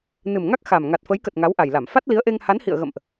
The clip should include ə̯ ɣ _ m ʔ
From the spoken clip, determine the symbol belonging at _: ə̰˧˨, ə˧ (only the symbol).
ə̰˧˨